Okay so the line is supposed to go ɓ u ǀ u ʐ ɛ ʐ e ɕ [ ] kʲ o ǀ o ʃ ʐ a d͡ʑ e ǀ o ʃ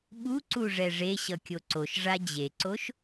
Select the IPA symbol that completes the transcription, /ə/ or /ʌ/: ʌ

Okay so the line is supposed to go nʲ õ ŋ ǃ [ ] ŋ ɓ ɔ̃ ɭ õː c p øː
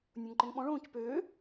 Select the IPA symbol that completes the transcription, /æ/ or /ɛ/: ɛ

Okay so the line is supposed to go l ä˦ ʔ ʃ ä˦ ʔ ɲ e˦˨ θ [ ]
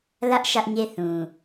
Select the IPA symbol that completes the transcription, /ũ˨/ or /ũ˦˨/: ũ˨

